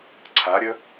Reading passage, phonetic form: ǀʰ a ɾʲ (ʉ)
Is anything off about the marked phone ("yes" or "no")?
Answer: yes